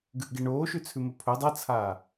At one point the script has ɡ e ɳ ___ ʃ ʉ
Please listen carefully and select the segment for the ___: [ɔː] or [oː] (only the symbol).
oː